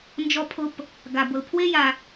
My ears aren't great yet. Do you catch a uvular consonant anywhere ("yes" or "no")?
no